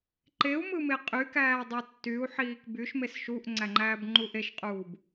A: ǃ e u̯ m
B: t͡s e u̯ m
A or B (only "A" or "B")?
A